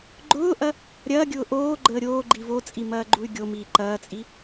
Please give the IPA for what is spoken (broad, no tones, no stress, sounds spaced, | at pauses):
ɡ͡ǃ ʊː ʔ ɐ | ɾʲ ɐː ɡʲ ʊː ʔ oː ɡ͡ǃ əː ɾʲ oː ɡ͡ǃ i v o t͡sʼ i m ɐː ɡ͡ǃ u y̯ ɡʲ o m iː ǃ ɐː t͡sʼ i